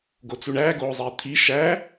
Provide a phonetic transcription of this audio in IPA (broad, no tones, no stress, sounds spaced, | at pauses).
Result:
ɡ o t͡s u ɳ æː ɡ oː zˤ eː t̪ʰ i ʃ æ